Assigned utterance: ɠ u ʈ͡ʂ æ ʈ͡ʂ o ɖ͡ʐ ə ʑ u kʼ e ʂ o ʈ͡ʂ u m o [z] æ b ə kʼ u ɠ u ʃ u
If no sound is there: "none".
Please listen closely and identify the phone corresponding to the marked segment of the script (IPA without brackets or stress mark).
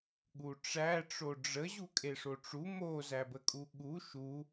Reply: z